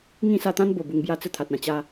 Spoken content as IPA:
ŋĩ˥˧sa˥˧t̪ã˦n bo˨˩bu˧ŋbja˥˧ t͡sə˥˧t̪ʰa˨t̚ã˧ t͡ɕa˧

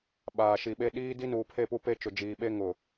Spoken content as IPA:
ɓaː˨ʃi˨ɓe˦ ɗiː˦ di˦nuː˨pʰe˦˨pu˦ pe˦t͡ʃʊ˨d͡ʒiː˨ ɓe˦ŋʊ˨

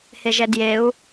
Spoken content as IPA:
heʒɛdjeu̯

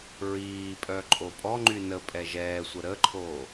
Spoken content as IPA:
ɹiːpʼœ ǃʼopʼɔ ŋ͡ǃynə pʼɛʒɛːsʷə ɾəǃʰoː

